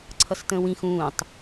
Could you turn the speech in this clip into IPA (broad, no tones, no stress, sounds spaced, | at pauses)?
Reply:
ǀʰ ʌ s t ə̃ː w ĩ x ũː tˤ